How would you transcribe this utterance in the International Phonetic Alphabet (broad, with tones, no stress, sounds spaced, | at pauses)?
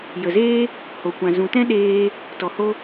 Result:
j ə˨ z eː˦ | h o˨ kʷ ã˨ z ũ˨ t ɛ̃˦ ɗ eː˦ | t ɔ˨ h o˧